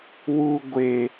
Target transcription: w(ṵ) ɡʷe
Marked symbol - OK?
no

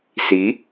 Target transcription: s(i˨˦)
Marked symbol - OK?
yes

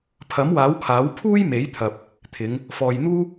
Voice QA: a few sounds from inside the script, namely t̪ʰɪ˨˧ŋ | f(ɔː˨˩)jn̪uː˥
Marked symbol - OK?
no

